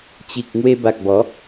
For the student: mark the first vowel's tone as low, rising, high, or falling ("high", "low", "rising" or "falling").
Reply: low